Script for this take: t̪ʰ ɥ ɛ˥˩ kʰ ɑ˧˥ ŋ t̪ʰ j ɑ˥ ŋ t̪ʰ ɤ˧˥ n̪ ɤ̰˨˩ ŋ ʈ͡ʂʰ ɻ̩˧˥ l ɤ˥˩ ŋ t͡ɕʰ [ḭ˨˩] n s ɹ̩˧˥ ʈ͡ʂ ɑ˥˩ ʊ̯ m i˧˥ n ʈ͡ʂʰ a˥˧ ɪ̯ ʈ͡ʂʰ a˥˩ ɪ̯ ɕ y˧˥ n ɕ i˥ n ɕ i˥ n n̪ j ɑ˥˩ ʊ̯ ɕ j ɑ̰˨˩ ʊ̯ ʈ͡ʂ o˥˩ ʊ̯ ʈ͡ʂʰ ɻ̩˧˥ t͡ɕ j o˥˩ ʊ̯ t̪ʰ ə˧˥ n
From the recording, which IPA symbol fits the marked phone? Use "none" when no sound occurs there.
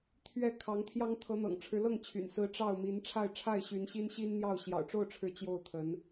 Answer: y̰˨˩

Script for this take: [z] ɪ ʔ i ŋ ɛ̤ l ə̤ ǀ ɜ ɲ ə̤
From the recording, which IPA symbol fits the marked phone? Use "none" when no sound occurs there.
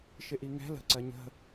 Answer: ʃ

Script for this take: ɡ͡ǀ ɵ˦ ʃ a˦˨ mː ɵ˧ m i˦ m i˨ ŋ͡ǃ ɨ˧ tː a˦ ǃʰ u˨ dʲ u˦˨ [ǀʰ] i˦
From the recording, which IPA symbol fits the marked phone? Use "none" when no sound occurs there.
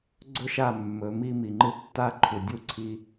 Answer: ǀʰ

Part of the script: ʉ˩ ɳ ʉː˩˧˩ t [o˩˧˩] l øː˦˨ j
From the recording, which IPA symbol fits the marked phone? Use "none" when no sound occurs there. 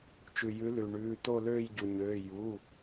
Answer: o˦˨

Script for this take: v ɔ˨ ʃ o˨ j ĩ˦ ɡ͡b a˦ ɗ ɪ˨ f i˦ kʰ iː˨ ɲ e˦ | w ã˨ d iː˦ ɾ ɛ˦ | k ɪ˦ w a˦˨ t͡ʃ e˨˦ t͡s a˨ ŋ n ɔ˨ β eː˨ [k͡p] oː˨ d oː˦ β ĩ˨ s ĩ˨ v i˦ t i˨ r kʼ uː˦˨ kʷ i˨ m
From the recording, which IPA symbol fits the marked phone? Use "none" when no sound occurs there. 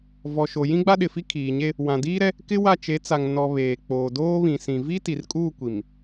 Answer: k͡p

